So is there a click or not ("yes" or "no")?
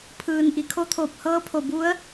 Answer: no